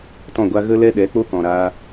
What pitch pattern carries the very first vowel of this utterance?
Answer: falling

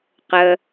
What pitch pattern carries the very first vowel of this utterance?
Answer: low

